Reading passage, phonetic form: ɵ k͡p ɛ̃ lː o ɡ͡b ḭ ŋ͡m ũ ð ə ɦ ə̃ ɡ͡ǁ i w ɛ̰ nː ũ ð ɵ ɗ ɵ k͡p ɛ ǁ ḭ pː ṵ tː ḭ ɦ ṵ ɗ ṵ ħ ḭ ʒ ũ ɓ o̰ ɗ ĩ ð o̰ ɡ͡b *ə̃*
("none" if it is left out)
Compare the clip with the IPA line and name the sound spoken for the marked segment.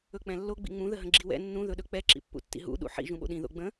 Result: ə̃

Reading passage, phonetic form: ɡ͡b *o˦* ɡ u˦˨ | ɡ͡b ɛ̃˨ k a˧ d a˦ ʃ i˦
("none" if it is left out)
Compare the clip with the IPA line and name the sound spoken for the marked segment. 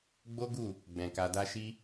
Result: o˦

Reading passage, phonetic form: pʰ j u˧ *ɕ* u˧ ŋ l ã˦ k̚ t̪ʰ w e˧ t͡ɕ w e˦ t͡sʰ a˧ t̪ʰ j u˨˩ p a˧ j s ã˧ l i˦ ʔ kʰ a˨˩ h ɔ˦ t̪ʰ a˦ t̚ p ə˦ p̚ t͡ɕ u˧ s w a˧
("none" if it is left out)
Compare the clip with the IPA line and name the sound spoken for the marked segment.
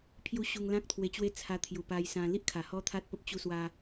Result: ɕ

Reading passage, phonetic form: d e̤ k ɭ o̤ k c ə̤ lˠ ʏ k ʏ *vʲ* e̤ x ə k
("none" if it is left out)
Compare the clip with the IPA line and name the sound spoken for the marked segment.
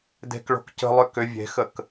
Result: vʲ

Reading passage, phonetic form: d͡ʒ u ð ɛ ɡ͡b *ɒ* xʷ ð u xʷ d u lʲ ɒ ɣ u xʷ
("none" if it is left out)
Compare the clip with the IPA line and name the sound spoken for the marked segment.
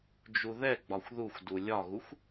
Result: ɒ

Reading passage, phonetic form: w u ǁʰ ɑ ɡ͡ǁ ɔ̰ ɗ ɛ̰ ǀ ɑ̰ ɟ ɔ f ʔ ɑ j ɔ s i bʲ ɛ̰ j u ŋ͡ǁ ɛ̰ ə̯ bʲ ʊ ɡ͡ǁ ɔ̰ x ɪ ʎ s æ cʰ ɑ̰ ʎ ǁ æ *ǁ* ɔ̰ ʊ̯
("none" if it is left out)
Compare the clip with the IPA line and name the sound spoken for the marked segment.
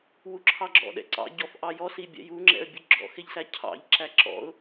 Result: ǁ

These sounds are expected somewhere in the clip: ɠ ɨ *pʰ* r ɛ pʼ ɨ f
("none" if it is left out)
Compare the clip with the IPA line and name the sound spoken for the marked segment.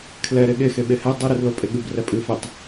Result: b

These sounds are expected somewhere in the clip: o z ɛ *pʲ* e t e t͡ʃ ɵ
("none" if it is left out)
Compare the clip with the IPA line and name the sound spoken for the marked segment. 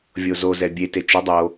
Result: bʲ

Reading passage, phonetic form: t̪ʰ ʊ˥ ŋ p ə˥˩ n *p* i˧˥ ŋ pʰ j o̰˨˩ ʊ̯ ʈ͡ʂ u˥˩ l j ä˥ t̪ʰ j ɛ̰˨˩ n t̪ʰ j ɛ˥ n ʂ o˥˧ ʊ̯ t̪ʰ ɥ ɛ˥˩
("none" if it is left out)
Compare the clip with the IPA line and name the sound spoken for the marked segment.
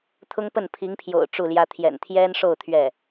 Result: pʰ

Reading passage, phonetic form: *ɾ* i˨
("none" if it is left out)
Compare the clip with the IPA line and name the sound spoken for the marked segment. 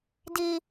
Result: d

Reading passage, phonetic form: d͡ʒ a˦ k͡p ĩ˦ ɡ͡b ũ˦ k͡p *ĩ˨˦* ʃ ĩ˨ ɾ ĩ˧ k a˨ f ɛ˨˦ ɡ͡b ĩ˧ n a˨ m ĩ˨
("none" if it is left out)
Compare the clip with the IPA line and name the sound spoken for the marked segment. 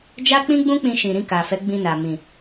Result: ĩ˧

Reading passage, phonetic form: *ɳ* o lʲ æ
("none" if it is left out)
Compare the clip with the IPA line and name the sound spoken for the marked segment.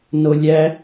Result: n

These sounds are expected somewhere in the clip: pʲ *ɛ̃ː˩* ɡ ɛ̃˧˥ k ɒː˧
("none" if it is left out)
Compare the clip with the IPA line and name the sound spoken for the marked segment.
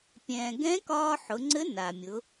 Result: ɛ̃ː˩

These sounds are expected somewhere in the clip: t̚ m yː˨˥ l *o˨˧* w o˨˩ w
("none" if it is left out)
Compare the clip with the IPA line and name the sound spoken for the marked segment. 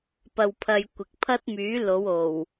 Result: o˨˧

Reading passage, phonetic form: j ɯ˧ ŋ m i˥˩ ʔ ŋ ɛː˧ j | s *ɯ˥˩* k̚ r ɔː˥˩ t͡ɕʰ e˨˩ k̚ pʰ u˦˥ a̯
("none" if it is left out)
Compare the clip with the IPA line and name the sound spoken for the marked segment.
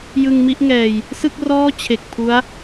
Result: ɯ˥˩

